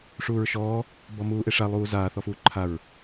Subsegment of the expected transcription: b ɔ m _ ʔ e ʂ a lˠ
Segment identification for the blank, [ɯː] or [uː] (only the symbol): uː